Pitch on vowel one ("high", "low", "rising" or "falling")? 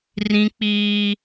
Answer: high